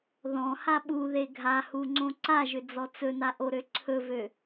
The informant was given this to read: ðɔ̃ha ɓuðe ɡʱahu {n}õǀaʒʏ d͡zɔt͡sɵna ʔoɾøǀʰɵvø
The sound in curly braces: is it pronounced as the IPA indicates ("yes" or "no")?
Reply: no